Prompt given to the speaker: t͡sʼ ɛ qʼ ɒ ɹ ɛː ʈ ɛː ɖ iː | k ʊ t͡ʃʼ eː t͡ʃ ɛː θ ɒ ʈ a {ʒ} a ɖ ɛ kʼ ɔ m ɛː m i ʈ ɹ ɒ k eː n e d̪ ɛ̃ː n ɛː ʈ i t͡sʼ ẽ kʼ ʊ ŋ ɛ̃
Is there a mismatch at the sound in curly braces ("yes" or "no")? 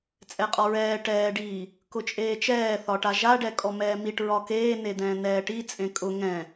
no